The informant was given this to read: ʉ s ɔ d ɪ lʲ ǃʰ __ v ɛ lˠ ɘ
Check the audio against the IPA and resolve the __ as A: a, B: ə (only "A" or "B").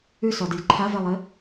A